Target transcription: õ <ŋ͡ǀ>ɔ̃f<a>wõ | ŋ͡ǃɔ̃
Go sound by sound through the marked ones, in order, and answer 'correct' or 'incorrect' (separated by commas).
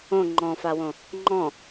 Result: incorrect, correct